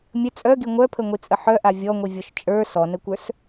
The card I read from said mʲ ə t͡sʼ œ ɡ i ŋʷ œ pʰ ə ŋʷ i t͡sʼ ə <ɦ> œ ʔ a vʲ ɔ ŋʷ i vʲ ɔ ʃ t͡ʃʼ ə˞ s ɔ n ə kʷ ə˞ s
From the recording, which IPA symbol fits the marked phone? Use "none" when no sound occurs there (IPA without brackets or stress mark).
ħ